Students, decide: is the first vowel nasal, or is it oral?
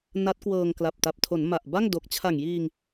oral